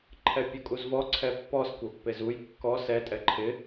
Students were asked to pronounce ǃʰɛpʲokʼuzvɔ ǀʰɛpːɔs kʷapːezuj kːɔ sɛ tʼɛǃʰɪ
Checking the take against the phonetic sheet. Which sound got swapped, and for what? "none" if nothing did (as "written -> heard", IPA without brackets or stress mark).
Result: none